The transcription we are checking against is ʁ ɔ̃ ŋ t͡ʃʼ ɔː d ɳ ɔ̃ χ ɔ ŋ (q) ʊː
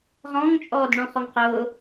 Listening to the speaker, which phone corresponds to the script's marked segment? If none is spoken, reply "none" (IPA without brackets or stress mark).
q